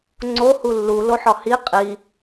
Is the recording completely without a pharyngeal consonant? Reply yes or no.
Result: no